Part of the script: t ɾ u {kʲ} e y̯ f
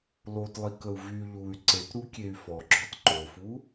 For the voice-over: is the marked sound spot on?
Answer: yes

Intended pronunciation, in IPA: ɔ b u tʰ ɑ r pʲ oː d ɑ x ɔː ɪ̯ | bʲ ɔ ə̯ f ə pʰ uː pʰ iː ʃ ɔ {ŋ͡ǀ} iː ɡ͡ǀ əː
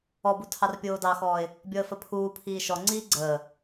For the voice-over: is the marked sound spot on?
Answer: yes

